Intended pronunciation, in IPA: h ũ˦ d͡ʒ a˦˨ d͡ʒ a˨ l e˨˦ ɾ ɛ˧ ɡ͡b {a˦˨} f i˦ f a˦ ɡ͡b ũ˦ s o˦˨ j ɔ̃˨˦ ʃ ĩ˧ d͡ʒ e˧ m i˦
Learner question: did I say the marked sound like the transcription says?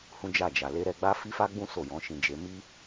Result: no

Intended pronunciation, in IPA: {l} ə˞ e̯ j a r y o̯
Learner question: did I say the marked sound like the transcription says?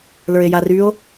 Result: yes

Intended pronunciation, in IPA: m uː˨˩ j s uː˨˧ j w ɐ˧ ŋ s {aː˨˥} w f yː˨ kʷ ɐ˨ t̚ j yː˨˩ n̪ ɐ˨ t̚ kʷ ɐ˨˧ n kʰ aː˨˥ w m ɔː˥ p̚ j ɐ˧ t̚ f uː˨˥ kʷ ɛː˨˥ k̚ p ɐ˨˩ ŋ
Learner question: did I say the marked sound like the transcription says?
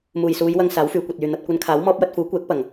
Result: yes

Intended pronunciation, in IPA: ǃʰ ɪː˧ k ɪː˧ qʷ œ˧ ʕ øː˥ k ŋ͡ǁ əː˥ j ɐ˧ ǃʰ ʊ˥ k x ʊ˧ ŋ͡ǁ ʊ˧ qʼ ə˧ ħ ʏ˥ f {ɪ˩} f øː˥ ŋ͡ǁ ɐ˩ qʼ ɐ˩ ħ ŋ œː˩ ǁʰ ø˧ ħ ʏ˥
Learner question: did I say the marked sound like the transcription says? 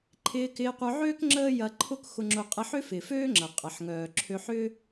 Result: yes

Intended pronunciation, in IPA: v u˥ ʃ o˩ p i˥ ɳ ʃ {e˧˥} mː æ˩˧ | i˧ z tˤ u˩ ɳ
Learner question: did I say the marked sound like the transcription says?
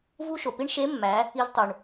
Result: yes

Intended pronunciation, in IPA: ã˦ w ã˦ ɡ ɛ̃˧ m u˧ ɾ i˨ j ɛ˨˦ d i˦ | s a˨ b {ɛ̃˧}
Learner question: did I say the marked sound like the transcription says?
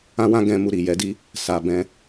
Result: yes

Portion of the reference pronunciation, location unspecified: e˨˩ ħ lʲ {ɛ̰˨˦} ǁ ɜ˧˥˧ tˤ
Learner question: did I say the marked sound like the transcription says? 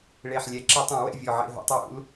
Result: no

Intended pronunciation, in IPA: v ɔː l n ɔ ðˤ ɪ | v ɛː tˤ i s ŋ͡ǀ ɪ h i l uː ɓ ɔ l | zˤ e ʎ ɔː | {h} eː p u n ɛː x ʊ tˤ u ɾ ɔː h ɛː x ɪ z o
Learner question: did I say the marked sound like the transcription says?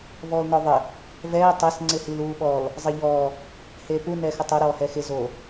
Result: yes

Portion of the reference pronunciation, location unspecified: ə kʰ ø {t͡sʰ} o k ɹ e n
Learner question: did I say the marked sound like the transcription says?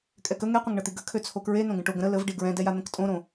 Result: yes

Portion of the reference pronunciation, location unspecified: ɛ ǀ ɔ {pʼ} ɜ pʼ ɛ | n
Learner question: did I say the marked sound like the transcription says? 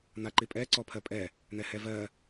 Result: no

